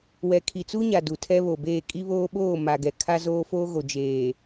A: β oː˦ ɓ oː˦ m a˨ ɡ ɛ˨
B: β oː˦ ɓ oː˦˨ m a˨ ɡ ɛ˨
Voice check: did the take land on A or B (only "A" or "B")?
B